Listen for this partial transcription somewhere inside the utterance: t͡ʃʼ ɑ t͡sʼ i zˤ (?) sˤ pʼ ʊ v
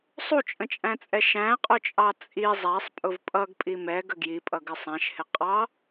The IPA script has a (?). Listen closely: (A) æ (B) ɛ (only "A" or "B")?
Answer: A